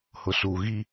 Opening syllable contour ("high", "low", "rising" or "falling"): low